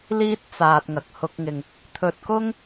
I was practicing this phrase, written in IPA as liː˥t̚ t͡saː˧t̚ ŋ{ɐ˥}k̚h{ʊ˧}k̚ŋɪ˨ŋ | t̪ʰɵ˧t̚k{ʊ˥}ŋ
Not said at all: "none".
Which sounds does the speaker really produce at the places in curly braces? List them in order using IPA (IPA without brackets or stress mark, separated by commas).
ɐ˨, ʊ˧, ʊ˥